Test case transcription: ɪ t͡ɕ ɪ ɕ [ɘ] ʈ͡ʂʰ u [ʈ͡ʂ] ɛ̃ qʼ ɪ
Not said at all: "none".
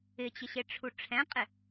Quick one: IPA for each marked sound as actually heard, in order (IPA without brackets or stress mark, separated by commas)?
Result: e, ʈ͡ʂʰ